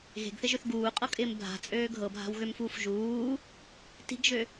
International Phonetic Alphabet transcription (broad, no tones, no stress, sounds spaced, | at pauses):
ɣ e̤ ɡ θ ɪ ʒ ø θ ɡ uː qʼ ɤ kʼ ɪː m bʱ a̤ t͡sʼ øː ɡʱ ɤ bʱ a̤ w ɣ ø m f uː f ʒ uː | t i̤ ɡ ʒ ø